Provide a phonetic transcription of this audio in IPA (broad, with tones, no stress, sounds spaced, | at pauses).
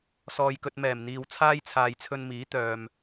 s ɔː˧ j k ɵ˧ t̚ m ɛː˨˩ m n̪ iː˨ w t͡sʰ aː˥ j t͡sʰ aː˨ j t͡sʰ ɵ˧ n m iː˨˥ t̪ œː˨ m